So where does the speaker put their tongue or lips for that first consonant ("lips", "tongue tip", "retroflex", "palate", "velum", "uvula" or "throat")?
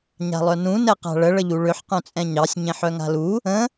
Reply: palate